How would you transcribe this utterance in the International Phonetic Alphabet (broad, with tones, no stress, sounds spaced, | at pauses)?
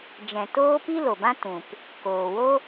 d͡ʒ ɛ̃˨ t oː˦ p i˦ l o˨ b ã˦ t ũ˨ p | k oː˨ w o˦